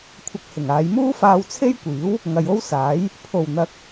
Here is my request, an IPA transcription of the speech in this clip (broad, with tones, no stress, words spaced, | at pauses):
kʷʰɐ˧k̚hɪ˨˩ŋaː˨˧j muː˥faː˧wt͡sʰe˥jkʷiː˨˥w | ŋɐ˨jo˥w saː˨˥j | pʰo˨˩wn̪ɐ˨k̚